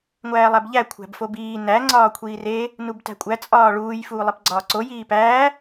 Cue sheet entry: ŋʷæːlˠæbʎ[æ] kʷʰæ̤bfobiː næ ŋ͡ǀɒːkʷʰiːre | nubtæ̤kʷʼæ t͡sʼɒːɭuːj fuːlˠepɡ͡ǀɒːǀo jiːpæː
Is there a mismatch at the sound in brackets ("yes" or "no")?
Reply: no